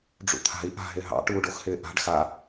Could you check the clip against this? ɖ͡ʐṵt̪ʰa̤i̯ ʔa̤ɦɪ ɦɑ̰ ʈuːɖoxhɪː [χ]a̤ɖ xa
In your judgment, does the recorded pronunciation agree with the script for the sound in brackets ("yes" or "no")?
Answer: no